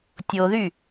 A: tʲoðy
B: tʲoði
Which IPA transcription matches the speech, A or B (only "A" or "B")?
A